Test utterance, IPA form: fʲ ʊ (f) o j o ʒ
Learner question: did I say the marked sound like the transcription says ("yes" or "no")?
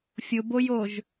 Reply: no